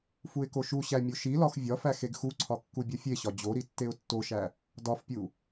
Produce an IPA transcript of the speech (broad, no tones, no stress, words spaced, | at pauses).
fuɪ̯koʃuɕæ mʲoʃilɒx vʲɒfæ xeɡxuǀʰɒ kːubʲɒfʲeɕɒ d͡ʑoɾi tːeʊ̯tːoʃæ | dɒfpʲu